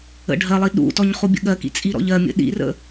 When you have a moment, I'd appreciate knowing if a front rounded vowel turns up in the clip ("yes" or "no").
no